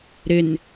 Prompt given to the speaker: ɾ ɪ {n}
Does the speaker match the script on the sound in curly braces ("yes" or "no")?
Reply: yes